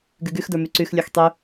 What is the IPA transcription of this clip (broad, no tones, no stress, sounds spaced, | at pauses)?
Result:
ɡ y ɡ y x d ə˞ m y ǀ y x lʲ ə˞ x tˤ y